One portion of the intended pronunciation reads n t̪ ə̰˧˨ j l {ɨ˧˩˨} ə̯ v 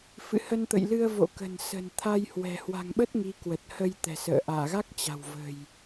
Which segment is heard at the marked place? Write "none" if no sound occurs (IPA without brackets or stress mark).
ɨ˧